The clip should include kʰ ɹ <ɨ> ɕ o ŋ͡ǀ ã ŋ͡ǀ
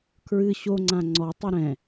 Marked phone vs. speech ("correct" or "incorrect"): correct